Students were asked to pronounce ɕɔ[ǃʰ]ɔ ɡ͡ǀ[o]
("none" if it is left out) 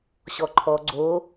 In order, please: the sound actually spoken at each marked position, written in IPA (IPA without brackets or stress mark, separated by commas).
ǃʰ, o